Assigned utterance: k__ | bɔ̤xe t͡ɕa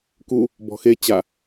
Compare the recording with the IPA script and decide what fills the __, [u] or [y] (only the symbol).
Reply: u